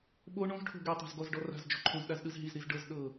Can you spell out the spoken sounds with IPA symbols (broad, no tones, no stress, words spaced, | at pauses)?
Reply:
ɓo ɳõzʈʰo̤ ɡetˤe̤z ɡɔzɖɔ ra̤z d͡ʒo̤ǃʰõzɗaz ɗɯzɦizɾiz ɖɤz ɗɤ